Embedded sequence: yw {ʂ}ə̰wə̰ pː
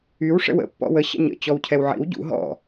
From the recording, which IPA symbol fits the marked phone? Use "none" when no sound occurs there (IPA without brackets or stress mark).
ʂ